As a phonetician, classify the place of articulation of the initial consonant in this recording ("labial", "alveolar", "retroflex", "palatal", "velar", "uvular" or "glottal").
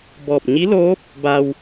labial